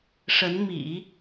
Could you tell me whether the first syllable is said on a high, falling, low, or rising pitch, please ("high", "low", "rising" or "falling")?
rising